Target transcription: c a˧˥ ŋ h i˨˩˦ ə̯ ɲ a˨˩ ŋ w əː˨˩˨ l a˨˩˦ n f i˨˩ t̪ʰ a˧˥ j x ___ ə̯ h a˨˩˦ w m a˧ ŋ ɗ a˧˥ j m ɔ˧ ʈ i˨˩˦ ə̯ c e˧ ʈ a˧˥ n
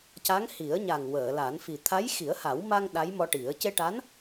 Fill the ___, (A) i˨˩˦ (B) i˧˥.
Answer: A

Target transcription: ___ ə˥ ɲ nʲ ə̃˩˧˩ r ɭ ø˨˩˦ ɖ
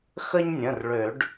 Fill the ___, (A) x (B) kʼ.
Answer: A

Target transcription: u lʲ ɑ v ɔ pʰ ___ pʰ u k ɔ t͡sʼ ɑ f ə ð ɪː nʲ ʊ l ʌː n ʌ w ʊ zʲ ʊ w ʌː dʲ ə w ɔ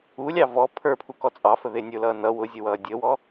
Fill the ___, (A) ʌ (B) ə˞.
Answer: B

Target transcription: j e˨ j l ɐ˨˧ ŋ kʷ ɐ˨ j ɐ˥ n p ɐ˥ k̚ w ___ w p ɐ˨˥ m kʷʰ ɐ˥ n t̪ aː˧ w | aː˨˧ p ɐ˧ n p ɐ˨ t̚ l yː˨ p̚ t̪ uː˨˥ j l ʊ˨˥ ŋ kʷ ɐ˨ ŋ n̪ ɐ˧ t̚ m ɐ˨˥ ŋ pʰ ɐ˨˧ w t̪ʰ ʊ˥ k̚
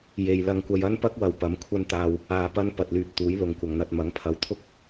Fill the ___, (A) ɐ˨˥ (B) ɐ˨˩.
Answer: B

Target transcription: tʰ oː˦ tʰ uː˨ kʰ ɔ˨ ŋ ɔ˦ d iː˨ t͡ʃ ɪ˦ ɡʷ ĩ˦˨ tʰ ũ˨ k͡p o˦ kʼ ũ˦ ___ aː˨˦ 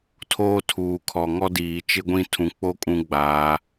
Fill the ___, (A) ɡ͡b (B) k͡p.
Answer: A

